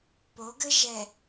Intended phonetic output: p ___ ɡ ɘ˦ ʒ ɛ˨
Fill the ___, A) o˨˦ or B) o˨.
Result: A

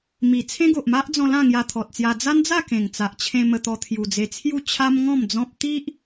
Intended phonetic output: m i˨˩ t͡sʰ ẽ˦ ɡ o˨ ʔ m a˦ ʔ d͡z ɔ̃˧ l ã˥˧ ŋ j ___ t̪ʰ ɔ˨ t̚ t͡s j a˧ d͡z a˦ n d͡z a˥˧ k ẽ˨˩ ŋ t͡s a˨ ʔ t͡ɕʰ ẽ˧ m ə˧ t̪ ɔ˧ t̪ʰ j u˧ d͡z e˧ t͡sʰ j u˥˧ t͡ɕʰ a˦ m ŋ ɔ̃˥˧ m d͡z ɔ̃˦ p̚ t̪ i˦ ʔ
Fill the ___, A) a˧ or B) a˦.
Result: A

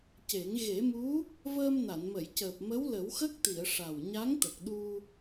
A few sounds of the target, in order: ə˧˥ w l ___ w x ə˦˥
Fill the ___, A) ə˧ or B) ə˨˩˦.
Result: B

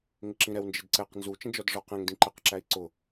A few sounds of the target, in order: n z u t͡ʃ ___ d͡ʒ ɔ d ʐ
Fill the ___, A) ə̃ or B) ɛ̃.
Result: A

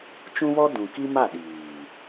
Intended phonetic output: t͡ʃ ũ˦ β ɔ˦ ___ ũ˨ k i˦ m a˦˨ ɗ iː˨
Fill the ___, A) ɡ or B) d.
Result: B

